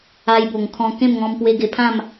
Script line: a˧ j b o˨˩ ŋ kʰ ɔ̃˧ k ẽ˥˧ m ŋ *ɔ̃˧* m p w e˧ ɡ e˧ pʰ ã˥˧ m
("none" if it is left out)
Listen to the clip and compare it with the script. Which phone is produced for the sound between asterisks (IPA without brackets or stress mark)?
ɔ̃˧